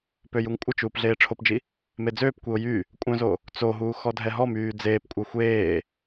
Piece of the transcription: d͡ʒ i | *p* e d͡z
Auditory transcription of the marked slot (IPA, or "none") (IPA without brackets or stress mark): m